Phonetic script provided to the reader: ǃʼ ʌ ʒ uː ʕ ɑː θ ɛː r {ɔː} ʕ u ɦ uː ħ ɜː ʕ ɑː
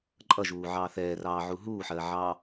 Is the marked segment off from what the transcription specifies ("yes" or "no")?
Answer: yes